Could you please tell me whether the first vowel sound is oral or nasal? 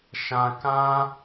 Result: nasal